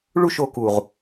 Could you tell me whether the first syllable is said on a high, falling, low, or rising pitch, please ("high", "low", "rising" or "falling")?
falling